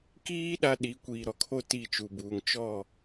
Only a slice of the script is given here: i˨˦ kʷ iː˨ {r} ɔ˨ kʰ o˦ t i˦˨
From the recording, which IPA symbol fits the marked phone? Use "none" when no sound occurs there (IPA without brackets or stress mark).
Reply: ɾ